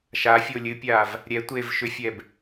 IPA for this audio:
ʃ a fʲ o lʲ ɨ pʲ aː v | ɾʲ ɛ tʷ eː v ʃ ʏ fʲ ɛ b

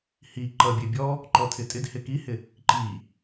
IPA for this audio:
h i ǃ ʌ bʲ e bʲ ɔ | ǃ ɔ tʰ ɪ tʼ ɪ d h ɪ k i h ɪ | ǃ i

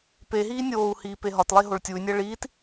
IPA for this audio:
p e ɦ iː nʲ oː u̯ h iː p e ɦ ɒ t lˠ e ɦ o ɭ tʲ u y̯ nʲ æ ɭ iː t

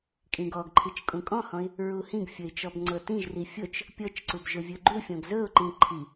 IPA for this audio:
kʼ ĩ ɡ ɔ ɡ ǃʰ i t͡ʃ kʼ ũ kʼ ɔ̃ h ɔ̃ ɪ̯ | ɹ u h ĩ ɡ fʲ ɵ ɪ̯ t͡ʃ ɔ b ŋ͡ǀ ɤ t ĩ ʒ r i fʲ ʊ t͡ʃ | pʲ ɤ t͡ʃ ǀ u b ʒ ʊ vʲ ɵ ɡ͡ǃ u fʲ ɔ̃ ɡ z ɵ ʊ̯ ǃ ĩ ǃʰ i

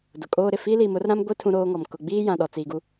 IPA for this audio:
d ʊ˨ kʼ oː˦ ɾ ɪ˨ f i˦ l i˨ m ʊ˦ r ɾ ã˦ m ɡʷ i˦ tʰ ũ˦ ɾ oː˦ ŋ ɔ˨ m k ʊ˨ ɡ͡b iː˦ j ã˨ ɗ ɔ˨ t͡s iː˨ ɡ u˦

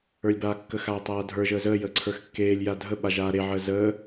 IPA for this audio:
ə˞ lʲ b aː kː ə x aː tˤ aː dʱ ə˞ ʒ əː z əː j əː ǀʰ ə˞ x kː eː lʲ j a dʱ ə ɓ a ʒ aː ɾ e ʕ əː z əː

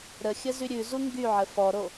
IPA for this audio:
ɾ ə xʲ ə z y ɾʲ ʉ z u ŋ ɡ y ʕ ə f ɔ ɾ o

